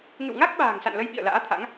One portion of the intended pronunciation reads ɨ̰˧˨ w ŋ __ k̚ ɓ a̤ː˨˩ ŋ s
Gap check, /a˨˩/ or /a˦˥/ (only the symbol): a˦˥